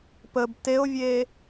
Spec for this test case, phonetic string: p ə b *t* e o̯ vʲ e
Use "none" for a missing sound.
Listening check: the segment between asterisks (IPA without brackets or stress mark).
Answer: t